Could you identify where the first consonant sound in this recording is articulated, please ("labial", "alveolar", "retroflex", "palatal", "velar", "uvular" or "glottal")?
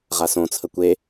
uvular